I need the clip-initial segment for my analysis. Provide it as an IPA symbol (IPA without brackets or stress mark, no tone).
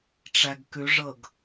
ʈ͡ʂ